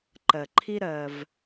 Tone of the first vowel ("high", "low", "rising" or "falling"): low